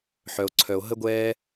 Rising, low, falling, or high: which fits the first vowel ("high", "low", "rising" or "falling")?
high